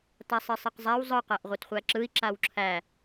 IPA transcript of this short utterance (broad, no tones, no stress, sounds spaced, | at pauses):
t a sˤ i sˤ i q zˤ æ w zˤ ɯ q ɜ ʔ ʁʷ ɯ t χʷ æ ǁ ɯ i̯ ǁ a w ǁʰ æ